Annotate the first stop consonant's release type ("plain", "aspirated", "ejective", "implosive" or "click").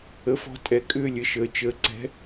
ejective